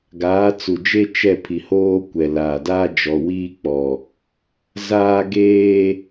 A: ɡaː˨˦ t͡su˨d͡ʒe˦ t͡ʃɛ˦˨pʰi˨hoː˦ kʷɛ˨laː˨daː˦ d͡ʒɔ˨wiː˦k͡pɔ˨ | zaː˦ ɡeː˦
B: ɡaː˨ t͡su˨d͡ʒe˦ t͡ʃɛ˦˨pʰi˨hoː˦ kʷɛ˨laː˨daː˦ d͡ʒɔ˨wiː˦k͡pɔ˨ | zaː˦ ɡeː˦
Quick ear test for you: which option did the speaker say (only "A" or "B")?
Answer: A